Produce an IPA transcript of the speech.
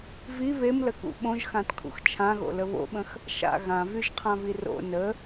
v i β e m l ə k ṵ ɓ õ ʒ x ã t kʰ ṵ x t͡ʃʰ ã ɣ o̰ l ə β o̰ ɓ ə̃ x | ʃ a̰ ɣ ã v y ʒ qʰ ã v i r o̰ n ə

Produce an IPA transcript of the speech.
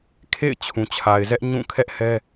kʰ ḛ˦˨ ɪ̯ t͡ɕʰ ũ˨ t͡ɕʰ a˨ ɪ̯ z ɛ˦ ʔ ɲ ũ˦˨ kʰ ɛ˦ ʔ h ɛ˦

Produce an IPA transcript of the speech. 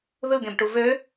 ð ɯ ɡ ẽ b ʈ u v ø

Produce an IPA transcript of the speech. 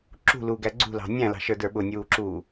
ǁ ṳ l uː ɡ æ ɡ͡ǀ ṳ l ɑ̤ nʲ æ̃ l ɑ̤ ʃ ə˞ d ə˞ ɓ ʊ nʲ uː ǁ uː

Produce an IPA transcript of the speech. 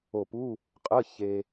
o˧˩ p u˧˥˧ | qʼ ə˧˥˧ ç e˧

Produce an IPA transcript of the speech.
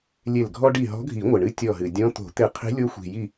lʲ e˧˩ l ɡʱ ɔ˧ ɖ i˧˩ ɦ ɔ̤˧˥ ɡʱ i˨˩˦ ŋʷ ɪ˩ ɳ ɨ˧˥ tʲ ɔ˧˩ ɦ ɨ˩ dʲ ɔ̃˧˥ t̪ o̤˨˩˦ t̪ ɪ˧˩ qʰ i̤˧˥ lʲ o˧˥ xʷ i̤˩ j i˧˩

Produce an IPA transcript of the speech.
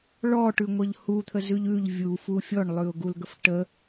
ɭ ɔ ʈ ʉ ŋʷ ə ʎ h u t̪ʰ ə z ʉ ʎ ʉ ʎ vʲ u f u fʲ ɔ ɳ lˠ ʉ ʊ̯ ɡ u l ɡ ə f ʈ ə

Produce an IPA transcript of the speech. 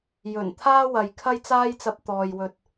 j ɵ˨˩ n t̪ʰ aː˥ w ɐ˨ j kʰ ɐ˥ j t͡s aː˥ j t͡s ɐ˧ p̚ t̪ ɔː˨ j w ɵ˨ t̚

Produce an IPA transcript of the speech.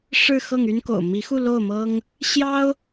ʂ ɻ̩˥˧ x ɤ˥˩ ŋ y˥ n k o̰˨˩ ʊ̯ m i˧˥ x u˥˧ l o˥˩ ʊ̯ m ɤ˥ ŋ | ɕ j ɑ˥ ʊ̯

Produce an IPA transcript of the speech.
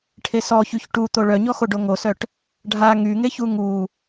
ʈʰ e s ɔ ç y ç ʈ u t̪ o ɭ œ ɲ ɔ x o ɖ o ŋ o s œ ʈ | ɖʱ a ŋ y ŋ e ç u ŋ u

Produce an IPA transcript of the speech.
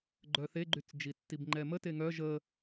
ɡ͡ǃ œ θ e ɡ͡ǃ y t͡s d͡ʒ i tː i b ŋ͡ǃ ɛ m ə t e ŋ œ ʒ ə

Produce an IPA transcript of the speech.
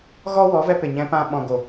ɣ ɔ˦ w ɔ˨˦ v ɛ˧ p e˨ ɲ ɛ̃˧ p ã˧ ɓ ɔ̃˨ ɡ o˨

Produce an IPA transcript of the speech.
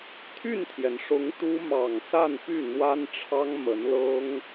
t̪ʰ y˥˩ n t̪ʰ j ɛ˩ n ʂ ʊ˧˥ ŋ t̪ u˥ m ɑ˨˩ ŋ s a˥˧ n p y˥˩ n̪ w a˥ n ʈ͡ʂʰ ɑ˥ ŋ m ə˧˥ n l ɤ˥ ŋ

